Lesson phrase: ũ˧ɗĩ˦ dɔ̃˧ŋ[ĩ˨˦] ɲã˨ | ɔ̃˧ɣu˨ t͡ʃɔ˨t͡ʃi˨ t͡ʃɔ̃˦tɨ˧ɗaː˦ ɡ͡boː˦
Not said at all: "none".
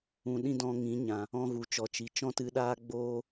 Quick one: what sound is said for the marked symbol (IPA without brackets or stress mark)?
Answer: ĩ˨˦